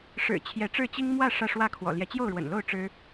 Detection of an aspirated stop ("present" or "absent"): present